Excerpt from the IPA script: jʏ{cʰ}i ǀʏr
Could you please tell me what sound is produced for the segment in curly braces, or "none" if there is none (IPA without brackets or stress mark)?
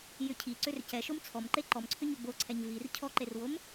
cʰ